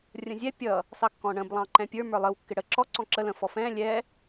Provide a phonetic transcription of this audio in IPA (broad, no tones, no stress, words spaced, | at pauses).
rʲə̃zʲɛ pʲʌ | sɑkːɔ̃ɳə̃b lˠɑ̃ǃɛ̃pʲə˞ mə˞lˠəw kːɪɽə ǁɔ ǀɔ̃ǁə lə̃ fɔfɛ̃ lʲɛ